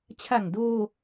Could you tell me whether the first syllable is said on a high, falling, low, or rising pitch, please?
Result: low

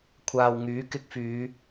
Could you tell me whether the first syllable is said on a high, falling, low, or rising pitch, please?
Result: low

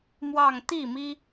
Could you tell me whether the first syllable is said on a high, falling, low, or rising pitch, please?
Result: falling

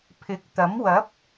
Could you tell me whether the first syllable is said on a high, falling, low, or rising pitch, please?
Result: rising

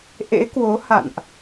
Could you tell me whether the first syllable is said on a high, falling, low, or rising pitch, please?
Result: rising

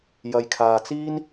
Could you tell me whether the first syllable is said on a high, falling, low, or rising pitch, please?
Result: low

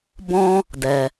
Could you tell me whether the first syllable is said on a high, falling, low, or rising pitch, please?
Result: high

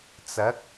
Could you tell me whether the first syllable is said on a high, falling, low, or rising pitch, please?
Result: rising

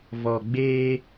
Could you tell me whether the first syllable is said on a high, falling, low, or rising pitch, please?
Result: low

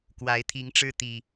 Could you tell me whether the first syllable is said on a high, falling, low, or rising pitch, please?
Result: rising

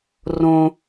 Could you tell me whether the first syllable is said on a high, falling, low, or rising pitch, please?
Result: high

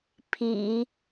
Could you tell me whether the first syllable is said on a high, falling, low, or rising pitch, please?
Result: low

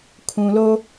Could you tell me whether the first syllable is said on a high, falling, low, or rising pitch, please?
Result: low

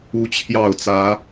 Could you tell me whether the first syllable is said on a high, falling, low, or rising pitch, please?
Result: high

